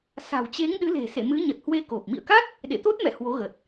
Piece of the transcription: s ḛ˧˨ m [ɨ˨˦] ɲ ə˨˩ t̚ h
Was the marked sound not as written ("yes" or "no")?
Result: no